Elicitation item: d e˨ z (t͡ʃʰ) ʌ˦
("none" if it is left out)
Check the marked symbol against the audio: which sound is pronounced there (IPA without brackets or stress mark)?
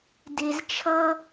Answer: t͡ʃʰ